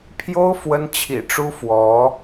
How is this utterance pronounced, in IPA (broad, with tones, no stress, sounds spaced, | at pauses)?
pʰ j o˥ ʊ̯ f w ə˥ n t͡ɕʰ ḭ˨˩ ʈ͡ʂ u˥ f w ɔ˧˥